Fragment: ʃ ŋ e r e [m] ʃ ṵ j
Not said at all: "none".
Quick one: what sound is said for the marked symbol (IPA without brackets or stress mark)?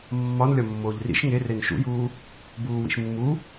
n